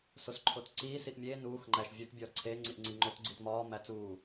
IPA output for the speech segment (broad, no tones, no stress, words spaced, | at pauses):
sosǃʰotǀiː siʔmʲeː nuːx ŋ͡ǃæʃvʲut bʲɒːǀʰeː ŋ͡ǀiʔŋ͡ǀiŋ͡ǃot ɡ͡ǀitmɒː mæt͡suː